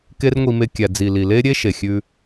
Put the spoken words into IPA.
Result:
k e˦ r ŋʷ i˧ m e˧ kʲ æ˨ d͡z i˨ l i˨ l e˦ ɾʲ e˦ ʃ e˨ xʲ ʉ˧

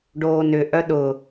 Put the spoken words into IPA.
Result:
ɖ oː n ʏ ʔ œ ɗ ʊ

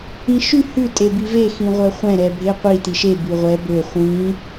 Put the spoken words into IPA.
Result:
ĩ ʃ y h ʉ tʼ e b i v e x ĩ ʁʷ œ χʷ ɛ̃ ɾ ɛ bʱ e qʷ i t i ʃ e b ʉ ʁʷ ɛ b ø χʷ ĩ

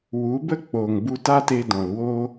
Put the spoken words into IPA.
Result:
w u˨˦ b ə˦ k͡p o˨ ŋ b u˧ t a˦ t e˧ d ɔ̃˨ l w o˦

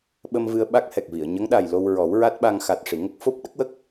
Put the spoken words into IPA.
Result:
ɓ ə˧ m v ɨ˧ ə̯ ɓ a˦˥ k̚ h ɛ˨˩ k̚ v i˨˩˨ ə̯ ɲ ə˧˥ ŋ ɗ a˨˩ j l o˧ w ɹ ɔ˨˩˦ w ɹ a˦˥ t̚ ɓ a˧ ŋ x a˨˩ t̚ ʂ i˨˩˨ ŋ ə˦˥ k̚ f o˦˥ p̚ ɗ ə˦˥ k̚ w ə˦˥ k̚

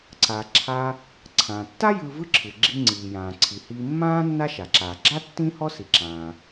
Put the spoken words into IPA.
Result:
ǀ a˩ ǁʰ a˧ | ǀʰ ã˩ tː a˥ j ɯː˧ v ɯ˥ ǁʰ ɯ˩ ɡ͡ǁ i˧ ŋ͡ǀ iː˩ j ãː˩ ǀʰ i˩ h iː˧ mː ãː˥ nː a˥ ʃ a˩ ǁ aː˩ ɡ͡ǁ a˥ tː ĩ˥ h ɔ˥ s i˩ ǁ ãː˩

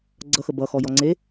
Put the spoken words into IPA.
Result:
ɡ͡ǀ ʌ x ə b ʌ x ɔ j ɔ ŋ͡ǀ e

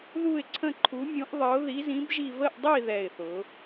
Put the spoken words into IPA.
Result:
ð u˥˧ ɪ̯ ǀʰ ə̃˥˧ ǃʰ u˧˥ mʲ ũ˧˥ ʔ ðˤ ə˧˥ ʊ̯ ð i˧˥ z ĩ˧˥ b ʒ i˥˧ v ə˥˧ ʔ dˤ i˥˧ ð ɛ˥˧ ɪ̯ θ ʊ˧˥

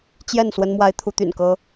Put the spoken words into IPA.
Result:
t͡ɕ j ɛ˥˨ n s w ə˦ n m w a˦ ɪ̯ t̪ʰ u˦ t̪ y̰˨˩ n k ɤ˦

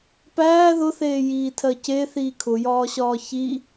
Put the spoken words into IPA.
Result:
p æː ð ʊ θ eː j iː tʰ ɜ c e θ iː kʰ ʊ j ɒː ɕ ɒː ç i

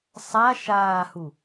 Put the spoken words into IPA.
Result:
sˤ a ʃ aː h u

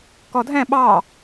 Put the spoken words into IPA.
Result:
k ɔ dʱ ɛ̃ ɓ ɑ

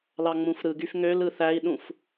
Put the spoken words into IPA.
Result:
l ɑ ŋ͡m ũ f ɾ ɯ ɡ y f ŋ ø l ɯ θ æ i̯ ɗ ũ f

